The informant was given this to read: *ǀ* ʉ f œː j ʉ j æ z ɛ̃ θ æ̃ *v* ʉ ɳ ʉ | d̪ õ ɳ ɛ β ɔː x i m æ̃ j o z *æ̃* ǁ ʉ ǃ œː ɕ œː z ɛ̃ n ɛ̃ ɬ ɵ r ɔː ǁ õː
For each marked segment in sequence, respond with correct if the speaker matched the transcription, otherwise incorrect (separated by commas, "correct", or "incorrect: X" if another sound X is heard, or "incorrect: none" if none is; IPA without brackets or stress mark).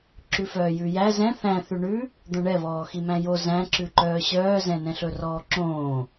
incorrect: ǁ, incorrect: θ, correct